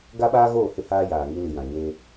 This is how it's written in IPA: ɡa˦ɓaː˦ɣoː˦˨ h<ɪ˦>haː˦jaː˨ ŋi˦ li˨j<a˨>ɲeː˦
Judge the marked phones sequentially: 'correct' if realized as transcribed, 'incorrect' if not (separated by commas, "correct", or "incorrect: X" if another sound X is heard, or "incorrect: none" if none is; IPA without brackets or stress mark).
correct, incorrect: ã˨